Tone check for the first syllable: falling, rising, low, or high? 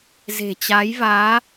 low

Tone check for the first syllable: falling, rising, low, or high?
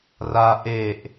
high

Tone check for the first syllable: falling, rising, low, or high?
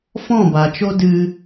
falling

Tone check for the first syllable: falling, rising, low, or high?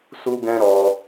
high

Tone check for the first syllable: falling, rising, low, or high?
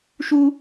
low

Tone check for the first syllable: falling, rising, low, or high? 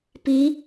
rising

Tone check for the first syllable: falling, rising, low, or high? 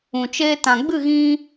low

